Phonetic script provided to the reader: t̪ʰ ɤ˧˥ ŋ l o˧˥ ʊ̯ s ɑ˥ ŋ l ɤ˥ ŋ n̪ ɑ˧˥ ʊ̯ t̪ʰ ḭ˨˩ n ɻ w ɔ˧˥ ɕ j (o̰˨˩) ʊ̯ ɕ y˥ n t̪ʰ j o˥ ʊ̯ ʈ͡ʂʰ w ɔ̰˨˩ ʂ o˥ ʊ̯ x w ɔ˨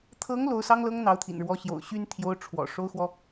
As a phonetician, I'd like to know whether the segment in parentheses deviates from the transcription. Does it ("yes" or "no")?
no